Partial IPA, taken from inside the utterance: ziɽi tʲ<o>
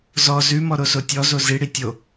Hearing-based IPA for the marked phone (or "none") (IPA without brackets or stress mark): o